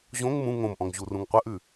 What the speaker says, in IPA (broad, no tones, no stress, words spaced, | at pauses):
ʑõŋ mũ ŋõmʔɔ̃ŋ ʑurũŋqʷəʔʉ